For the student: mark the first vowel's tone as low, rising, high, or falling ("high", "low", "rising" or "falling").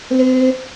high